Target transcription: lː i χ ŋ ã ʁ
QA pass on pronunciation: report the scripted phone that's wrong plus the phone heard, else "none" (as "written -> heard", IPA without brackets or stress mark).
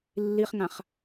ʁ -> χ